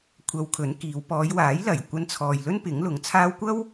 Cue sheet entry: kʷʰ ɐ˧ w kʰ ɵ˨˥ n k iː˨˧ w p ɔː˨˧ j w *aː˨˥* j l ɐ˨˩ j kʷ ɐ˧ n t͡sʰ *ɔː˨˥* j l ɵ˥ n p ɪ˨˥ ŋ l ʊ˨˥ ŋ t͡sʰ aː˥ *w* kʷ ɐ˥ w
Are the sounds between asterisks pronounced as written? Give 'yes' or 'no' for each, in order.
yes, no, yes

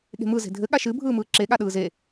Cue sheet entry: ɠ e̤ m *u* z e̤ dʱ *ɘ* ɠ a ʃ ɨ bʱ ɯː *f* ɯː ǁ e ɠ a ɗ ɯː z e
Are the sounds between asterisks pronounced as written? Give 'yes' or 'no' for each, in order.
no, yes, no

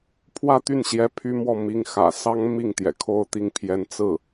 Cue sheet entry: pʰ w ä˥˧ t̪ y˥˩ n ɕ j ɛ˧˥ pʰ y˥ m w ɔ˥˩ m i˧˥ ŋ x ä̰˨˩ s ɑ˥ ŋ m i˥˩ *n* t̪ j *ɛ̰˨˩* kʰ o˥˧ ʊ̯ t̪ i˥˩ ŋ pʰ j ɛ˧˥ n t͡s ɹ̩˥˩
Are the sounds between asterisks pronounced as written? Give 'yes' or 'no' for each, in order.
no, yes

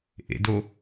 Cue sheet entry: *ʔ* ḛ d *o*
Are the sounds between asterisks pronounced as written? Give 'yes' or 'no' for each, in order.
yes, yes

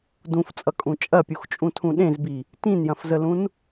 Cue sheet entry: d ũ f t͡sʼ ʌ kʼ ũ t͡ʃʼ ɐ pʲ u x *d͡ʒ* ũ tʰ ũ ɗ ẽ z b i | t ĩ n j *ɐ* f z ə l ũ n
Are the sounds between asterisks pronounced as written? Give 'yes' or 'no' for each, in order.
no, no

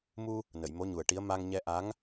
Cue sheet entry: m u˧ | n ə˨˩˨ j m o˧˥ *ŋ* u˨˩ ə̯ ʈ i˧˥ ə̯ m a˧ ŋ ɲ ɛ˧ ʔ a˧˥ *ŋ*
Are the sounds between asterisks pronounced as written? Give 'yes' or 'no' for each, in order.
no, yes

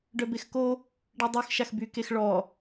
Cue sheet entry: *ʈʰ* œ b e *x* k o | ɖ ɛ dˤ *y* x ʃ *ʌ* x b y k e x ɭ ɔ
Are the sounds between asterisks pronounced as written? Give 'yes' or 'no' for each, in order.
no, yes, no, no

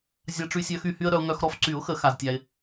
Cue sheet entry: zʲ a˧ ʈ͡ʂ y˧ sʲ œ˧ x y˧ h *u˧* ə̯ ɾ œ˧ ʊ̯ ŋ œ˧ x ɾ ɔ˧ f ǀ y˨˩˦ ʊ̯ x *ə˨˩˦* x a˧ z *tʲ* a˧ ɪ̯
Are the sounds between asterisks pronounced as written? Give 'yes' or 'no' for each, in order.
no, yes, yes

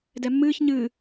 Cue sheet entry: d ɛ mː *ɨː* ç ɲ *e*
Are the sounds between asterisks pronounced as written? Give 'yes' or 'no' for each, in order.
yes, no

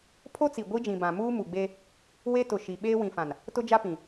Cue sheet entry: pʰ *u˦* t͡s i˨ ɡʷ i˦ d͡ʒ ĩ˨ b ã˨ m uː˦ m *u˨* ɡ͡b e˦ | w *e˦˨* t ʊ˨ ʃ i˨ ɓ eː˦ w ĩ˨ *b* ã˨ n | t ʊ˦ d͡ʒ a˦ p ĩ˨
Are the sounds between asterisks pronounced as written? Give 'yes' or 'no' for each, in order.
no, yes, no, no

